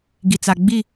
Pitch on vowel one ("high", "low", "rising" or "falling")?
low